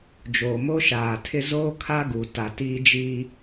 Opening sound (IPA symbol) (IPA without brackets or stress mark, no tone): d͡ʒ